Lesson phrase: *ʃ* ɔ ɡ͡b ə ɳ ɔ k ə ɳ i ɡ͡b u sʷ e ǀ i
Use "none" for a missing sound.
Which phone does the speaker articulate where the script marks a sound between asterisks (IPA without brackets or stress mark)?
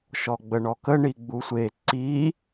ʃ